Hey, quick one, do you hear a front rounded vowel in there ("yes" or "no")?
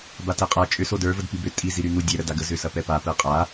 yes